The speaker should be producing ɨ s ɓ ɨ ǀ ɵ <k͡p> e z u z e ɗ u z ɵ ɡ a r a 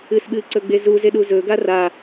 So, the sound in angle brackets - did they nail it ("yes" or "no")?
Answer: no